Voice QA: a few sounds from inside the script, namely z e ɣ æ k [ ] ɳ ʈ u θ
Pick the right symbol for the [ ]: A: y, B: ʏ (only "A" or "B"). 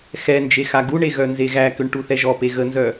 B